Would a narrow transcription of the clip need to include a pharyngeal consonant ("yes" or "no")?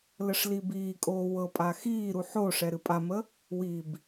yes